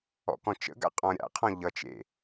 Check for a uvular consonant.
present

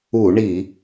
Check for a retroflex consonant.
present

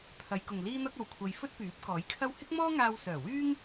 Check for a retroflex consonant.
absent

